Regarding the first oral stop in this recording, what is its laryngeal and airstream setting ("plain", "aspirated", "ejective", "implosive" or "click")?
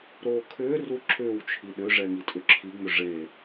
aspirated